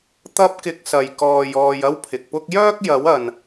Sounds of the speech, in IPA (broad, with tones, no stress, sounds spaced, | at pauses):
t̪ ɐ˥ p̚ k ɪ˧ k̚ s ɐ˨ j k ɔː˨ j ɔː˨ j ɐ˥ w pʰ ɪ˨ k̚ p ʊ˥ k̚ j œː˥ k̚ j ɐ˨˥ w ɐ˨ n